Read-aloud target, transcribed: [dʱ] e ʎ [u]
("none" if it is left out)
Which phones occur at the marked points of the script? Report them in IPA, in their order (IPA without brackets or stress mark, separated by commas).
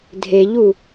dʱ, u